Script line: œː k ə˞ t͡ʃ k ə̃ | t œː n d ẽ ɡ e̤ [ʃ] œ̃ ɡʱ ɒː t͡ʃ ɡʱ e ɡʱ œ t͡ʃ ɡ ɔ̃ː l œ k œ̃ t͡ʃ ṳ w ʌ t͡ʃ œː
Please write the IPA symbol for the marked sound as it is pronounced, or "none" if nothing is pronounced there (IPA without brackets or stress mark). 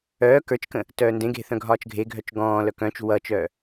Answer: θ